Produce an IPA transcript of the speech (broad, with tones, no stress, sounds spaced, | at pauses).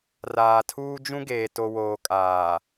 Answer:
r aː˨ tʰ uː˦ d͡ʒ ũ˦ ɡ eː˨ t o˨ w oː˨ kʼ aː˨